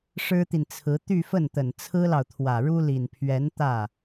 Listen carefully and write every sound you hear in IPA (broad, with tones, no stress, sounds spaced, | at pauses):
ʂ ɻ̩˥ t̪ i˨ n t͡sʰ ɹ̩˧˥ t̪ y˥˧ f ə˥˩ n t̪ ə˨˩ n t͡sʰ ɹ̩˥ l ɑ˨ ʊ̯ t̪ʰ w ä˨˩ ɻ u˥ l i˨˩ n pʰ ɥ ɛ˧˥ n t̪ ä˥˩